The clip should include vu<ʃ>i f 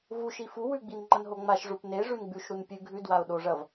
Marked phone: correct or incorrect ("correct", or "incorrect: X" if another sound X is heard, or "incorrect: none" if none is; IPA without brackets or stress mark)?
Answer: correct